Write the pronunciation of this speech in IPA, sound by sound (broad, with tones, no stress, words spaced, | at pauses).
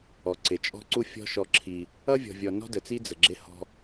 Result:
ɔ˨ǀɪ˨ t͡ʃʼɔ̤˦ǀu˦fʲɔ̤˦ ʃɔ˦ǁʰi˦ | ʌ˦vʲɔ̤˨vʲɔ˨ nɔ̤˦də˨t͡si˦ d͡zə˨ɡ͡ǁɪ˦hɔ̤˦